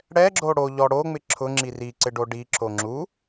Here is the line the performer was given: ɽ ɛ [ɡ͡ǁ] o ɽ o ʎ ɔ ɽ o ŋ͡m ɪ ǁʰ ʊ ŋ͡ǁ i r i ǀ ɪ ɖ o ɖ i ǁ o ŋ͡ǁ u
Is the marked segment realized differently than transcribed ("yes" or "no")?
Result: no